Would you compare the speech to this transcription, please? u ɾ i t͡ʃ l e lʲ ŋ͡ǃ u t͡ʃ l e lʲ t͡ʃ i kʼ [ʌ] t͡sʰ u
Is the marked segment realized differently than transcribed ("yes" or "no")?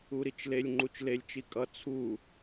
no